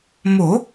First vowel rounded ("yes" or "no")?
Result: yes